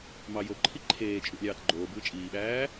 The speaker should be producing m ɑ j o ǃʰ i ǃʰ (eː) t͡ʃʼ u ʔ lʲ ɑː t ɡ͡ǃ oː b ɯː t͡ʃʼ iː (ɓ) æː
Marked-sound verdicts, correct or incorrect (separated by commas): correct, correct